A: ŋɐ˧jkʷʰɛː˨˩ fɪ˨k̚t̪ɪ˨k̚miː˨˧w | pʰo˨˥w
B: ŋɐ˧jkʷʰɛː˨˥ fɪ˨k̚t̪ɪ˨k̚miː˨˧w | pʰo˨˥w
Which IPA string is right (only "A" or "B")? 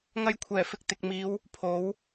A